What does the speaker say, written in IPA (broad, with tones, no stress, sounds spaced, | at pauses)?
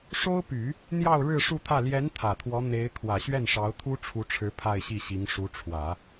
ʂ o˥ ʊ̯ p y˨˩˦ | n̪ j ɑ˥˧ ʊ̯ ɻ ɻ̩˥˧ ʂ u˥˧ t̪ʰ ä˥˩ l j ɛ˧˥ n t̪ʰ ä˨˩ t̪ʰ w ɔ˧˥ n̪ e˧˥ ɪ̯ kʰ w ä˨˩ ɕ ɥ ɛ˥˩ n ʂ ɑ˧˥ ʊ̯ t̪ʰ u˥ ʈ͡ʂʰ u˧˥ ʈ͡ʂʰ ɻ̩˧˥ pʰ a˥˧ ɪ̯ ɕ i˥˩ ɕ i˧˥ ŋ ʂ u˧˥ ʈ͡ʂʰ w ä˨˩˦